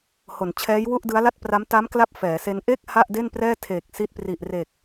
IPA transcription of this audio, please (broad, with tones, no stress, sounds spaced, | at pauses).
h o˩˦ n t͡ɕʰ ɛː˦˥ j w u˥˩ ʔ d ɯ˦˥ a̯ l a˥˩ t̚ p r a˦˥ m t a˦˥ m k l a˦˥ p̚ f ɛː˩˦ s e˦˥ n ʔ e˥˩ k̚ h a˥˩ ʔ d e˥˩ n p r ɛː˥˩ tʰ eː˨˩ k̚ s i˦˥ t̚ p r i˨˩ ʔ r e˨˩ k̚